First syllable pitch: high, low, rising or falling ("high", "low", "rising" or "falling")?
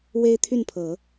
high